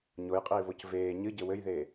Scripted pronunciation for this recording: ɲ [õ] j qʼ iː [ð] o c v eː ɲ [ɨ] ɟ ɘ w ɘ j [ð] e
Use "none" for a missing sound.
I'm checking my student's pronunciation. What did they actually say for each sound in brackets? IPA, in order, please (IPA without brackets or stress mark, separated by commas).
o, β, ɨ, ð